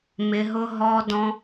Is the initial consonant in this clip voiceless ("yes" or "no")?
no